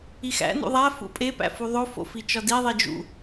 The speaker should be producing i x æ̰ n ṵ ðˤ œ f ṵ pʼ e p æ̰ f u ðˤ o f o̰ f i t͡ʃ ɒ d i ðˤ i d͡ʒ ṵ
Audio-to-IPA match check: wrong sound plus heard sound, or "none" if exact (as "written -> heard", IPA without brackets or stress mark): œ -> æ